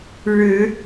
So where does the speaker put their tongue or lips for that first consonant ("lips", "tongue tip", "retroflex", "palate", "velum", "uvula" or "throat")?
retroflex